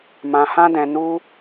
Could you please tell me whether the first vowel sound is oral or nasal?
nasal